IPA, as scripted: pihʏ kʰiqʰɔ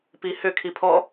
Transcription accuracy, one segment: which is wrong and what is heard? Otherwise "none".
qʰ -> pʰ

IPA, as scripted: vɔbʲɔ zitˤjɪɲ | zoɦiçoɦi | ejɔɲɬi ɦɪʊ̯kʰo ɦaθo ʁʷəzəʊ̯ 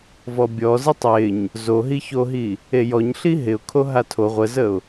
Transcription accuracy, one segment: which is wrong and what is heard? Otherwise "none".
θ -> tʰ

